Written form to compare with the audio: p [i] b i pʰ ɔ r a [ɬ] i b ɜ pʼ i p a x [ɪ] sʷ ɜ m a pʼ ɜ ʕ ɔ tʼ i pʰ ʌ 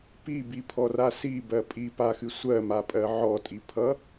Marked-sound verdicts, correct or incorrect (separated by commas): correct, incorrect, incorrect